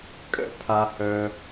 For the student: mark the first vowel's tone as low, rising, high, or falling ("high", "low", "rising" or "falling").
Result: high